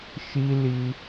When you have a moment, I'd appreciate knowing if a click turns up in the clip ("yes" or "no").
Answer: no